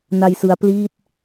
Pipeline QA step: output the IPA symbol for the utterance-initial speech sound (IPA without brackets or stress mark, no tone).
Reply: n